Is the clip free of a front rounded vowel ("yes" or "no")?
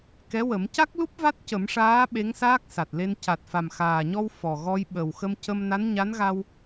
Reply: yes